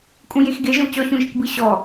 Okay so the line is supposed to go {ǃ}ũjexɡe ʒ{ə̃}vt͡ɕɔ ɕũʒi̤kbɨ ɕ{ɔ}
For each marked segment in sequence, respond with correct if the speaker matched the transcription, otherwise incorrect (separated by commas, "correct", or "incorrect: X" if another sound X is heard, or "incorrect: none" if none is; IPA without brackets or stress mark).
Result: incorrect: kʼ, correct, correct